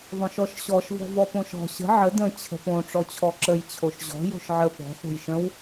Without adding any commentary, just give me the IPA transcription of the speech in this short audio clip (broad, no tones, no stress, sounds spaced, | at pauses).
ðˤ õ ʃ ɔ ʃ ɕ ɔ ʃ v ɔ̤ v ɔ p õ ʃ ɔ̤ ɕ ə̤ ʕ ə d ə̃ t͡ɕʰ ə̤ p õ ʈ͡ʂ ɔ t͡ɕʰ ɔ ǁ ə j t͡ɕʰ o ʃ ʑ ɔ̤ j o̤ ʃ ʕ ə p ɔ̤ ħ o̤ j ʃ ə̃ w